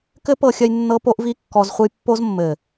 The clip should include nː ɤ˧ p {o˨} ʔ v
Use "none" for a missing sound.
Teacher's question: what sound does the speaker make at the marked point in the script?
o˦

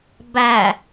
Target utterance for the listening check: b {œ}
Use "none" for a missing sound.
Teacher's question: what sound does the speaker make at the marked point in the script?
æ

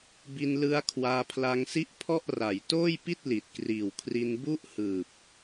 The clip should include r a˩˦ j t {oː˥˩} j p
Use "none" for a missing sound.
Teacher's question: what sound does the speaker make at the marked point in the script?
oː˥˩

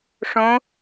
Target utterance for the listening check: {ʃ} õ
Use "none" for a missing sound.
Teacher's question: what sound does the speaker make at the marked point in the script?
ʂ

